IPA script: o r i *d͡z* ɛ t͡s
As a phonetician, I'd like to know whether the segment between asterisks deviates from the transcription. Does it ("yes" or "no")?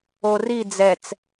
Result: no